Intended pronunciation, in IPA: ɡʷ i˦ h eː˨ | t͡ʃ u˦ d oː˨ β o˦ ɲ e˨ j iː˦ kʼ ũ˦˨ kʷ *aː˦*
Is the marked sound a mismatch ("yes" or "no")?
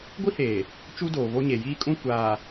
yes